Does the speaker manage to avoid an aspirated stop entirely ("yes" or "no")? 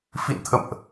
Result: no